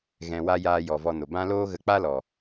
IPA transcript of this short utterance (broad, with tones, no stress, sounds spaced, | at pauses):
ɣ ɛ̃˧ w a˦ j aː˧ j ɔ˨ v ɔ˧ n o˨ b ã˦ l oː˦ ɣ ə˧ k͡p a˦ l ɔ˨